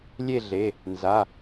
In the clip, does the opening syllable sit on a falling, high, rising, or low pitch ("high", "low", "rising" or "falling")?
falling